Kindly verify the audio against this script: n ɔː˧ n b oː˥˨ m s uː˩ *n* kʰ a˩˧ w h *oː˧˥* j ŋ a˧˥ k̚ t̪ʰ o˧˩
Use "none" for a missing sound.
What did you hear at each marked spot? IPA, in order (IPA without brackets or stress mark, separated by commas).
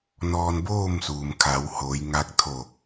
m, oː˩˧